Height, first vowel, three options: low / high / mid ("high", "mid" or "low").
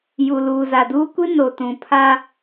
high